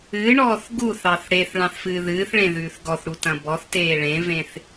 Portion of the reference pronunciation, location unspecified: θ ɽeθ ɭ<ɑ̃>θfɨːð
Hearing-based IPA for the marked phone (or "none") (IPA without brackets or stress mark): ɑ̃